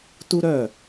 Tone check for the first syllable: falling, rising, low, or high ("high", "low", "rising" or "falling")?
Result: high